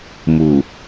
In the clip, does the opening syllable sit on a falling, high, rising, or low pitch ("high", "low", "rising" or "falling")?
low